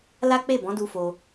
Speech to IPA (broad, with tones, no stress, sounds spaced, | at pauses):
l a˦ k͡p e˦˨ b ɔ̃˨˦ d u˧ f o˧